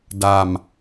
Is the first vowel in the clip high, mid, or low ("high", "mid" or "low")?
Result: low